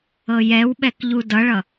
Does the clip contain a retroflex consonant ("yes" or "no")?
yes